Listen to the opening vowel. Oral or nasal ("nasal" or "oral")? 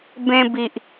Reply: nasal